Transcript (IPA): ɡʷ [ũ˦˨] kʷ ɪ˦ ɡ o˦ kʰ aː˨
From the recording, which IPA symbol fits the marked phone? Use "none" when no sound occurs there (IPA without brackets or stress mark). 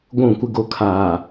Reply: ũ˦˨